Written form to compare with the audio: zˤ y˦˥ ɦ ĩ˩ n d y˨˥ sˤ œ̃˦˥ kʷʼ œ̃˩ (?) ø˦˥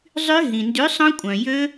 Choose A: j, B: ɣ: A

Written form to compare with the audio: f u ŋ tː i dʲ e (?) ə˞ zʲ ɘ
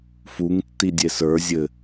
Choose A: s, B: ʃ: A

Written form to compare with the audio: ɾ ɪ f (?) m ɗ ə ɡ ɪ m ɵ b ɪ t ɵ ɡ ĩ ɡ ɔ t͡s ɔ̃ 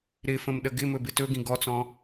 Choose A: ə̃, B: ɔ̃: A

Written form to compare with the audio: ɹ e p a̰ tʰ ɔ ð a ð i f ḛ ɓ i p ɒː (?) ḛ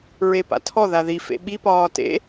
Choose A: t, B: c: A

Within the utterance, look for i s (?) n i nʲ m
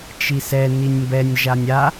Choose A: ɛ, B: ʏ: A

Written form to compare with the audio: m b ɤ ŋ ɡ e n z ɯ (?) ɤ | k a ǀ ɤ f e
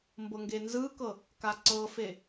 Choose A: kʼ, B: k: B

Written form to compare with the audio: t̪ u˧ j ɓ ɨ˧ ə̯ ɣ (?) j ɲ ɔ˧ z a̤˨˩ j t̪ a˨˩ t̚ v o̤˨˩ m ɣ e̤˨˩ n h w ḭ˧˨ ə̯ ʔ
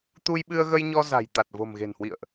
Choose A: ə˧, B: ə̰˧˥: A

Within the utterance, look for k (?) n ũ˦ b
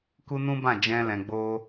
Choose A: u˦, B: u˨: A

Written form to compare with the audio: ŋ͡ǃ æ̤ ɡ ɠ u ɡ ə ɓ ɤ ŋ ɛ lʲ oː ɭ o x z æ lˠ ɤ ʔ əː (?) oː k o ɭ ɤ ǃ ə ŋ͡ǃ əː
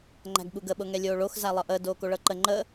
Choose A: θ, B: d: B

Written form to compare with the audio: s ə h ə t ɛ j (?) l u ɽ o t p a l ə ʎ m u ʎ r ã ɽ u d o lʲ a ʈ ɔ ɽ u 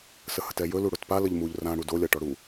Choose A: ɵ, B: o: A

